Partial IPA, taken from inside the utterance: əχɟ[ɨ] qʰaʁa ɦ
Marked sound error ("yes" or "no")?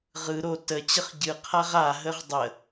no